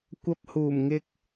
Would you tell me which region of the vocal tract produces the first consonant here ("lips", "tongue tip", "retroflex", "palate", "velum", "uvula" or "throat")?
velum